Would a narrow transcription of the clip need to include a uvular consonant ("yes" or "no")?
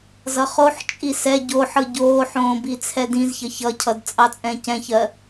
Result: yes